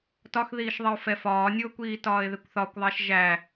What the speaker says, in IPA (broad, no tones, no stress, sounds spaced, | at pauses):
t ɒ x ð iː ʃ ðˤ ɪ ʊ̯ f ɛ f ɒː nʲ ʊː kʷ iː t ɒː ɪ̯ ð ɪ kʷ θ ɒ kʷ ðˤ æ ʃ ʒ æ